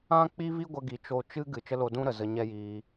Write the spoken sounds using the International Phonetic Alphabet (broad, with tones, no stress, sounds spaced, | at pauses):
ã˦ k͡p i˦ v i˦ ɡʷ ə˦ ɡ i˧ t͡ʃ o˦˨ t͡ʃ ɨ˦ ɡ ɨ˨ t͡ʃ ə˦ l o˧ d ũ˦ ɾ ə˨ z ə˧ ɲ ɛ˦ j iː˧